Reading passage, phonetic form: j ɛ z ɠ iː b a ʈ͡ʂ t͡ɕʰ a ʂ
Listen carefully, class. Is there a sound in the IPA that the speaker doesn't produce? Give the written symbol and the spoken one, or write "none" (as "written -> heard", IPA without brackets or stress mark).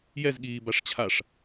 ʈ͡ʂ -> ʂ